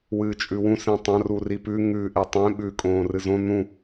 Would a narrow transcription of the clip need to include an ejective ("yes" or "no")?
yes